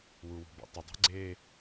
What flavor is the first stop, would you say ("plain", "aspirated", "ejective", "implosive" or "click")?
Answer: plain